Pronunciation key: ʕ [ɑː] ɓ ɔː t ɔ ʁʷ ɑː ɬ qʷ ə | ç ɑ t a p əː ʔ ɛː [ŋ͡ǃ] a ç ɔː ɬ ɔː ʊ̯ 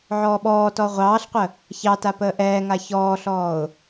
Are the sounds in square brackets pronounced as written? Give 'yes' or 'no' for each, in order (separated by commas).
no, no